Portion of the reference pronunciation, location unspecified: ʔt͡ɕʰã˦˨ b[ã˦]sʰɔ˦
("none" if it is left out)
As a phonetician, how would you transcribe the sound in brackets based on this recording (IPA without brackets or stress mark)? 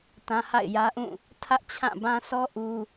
ã˦